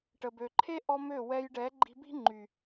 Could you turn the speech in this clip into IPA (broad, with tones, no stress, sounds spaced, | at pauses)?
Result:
ʈ ə˨ b ø˨ ǃʰ e˦ ʔ ɔ˧ m ø˦˨ w ɛ˧ j ɖ ɛ˨˦ ɡ͡ǃ i̤˧ b i̤˦ ŋ͡ǃ y˨